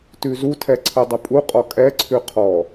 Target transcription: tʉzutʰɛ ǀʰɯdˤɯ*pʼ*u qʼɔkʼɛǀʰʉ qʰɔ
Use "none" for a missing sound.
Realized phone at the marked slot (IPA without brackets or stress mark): pʼ